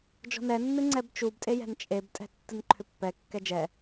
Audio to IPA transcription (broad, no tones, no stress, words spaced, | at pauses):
d͡ʒɔ̤nɛnːɨ ŋ͡ǀɛbt͡ʃubtʼe jɛ̤nt͡ʃʼebtʼɛ̤ tːɨnǃʰʏpːɛkːɛ d͡ʒɛ